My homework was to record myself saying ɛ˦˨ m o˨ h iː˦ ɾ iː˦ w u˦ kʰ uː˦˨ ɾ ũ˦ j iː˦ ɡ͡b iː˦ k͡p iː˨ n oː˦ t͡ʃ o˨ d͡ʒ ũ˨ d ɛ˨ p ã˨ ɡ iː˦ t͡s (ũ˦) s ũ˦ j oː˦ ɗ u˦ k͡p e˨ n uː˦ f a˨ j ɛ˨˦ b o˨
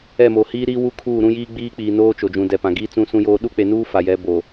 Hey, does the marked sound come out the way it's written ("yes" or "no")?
yes